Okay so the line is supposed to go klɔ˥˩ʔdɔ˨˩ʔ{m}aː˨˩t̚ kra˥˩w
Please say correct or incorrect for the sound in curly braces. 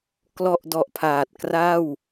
incorrect: pʰ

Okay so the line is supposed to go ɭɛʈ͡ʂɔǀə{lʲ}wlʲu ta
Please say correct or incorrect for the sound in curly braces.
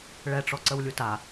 incorrect: none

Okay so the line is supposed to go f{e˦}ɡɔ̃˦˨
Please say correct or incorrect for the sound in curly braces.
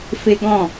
correct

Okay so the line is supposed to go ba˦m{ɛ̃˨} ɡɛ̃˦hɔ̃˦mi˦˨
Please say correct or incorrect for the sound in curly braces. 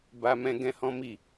incorrect: ɛ̃˦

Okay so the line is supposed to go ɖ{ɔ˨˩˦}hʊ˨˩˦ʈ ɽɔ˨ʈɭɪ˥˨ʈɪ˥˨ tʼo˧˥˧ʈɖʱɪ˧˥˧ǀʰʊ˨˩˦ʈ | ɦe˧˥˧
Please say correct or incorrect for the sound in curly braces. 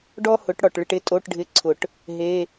incorrect: ɔ˥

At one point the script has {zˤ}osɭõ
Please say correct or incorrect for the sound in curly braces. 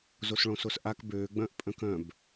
incorrect: z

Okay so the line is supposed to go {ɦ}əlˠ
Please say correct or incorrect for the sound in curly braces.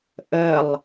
incorrect: ʔ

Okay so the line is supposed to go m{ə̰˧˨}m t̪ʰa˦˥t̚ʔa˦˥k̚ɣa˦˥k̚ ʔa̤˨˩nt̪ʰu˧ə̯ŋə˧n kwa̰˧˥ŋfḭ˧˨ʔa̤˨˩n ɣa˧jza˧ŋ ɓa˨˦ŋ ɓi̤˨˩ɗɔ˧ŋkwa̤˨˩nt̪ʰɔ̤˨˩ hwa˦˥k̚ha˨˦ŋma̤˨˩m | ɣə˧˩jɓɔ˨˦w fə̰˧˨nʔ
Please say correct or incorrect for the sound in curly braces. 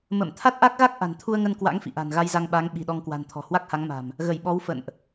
correct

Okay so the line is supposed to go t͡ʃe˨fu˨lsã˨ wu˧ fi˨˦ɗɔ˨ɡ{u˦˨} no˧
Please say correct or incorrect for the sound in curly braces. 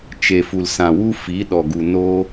incorrect: u˨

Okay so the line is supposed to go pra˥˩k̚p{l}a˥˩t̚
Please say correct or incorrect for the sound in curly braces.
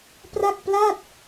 correct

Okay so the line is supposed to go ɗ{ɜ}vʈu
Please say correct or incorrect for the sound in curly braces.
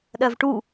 correct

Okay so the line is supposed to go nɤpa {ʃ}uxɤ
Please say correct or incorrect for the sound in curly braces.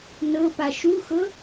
correct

